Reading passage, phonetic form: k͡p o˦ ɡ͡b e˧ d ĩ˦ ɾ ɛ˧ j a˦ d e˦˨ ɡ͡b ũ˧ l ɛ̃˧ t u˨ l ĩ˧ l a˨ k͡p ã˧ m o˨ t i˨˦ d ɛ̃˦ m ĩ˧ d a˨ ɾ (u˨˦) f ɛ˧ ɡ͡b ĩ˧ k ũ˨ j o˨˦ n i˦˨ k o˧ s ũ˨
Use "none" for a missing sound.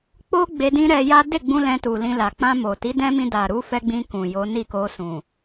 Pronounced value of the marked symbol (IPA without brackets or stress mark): u˨˦